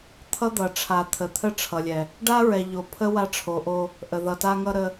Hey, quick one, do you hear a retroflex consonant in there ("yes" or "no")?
yes